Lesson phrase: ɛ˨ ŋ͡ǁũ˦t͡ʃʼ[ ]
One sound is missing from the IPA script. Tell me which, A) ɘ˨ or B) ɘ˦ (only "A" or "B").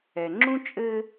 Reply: B